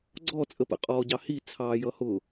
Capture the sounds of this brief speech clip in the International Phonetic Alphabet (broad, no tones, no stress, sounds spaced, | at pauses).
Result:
ɡ͡ǀ ɔ t͡sʼ ə p ə̰ qʼ ɔː ɟ ɑ h i t͡sʰ ɑː j ʌ h ʊ